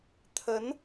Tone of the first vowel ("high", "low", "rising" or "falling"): rising